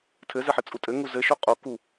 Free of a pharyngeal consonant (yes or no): no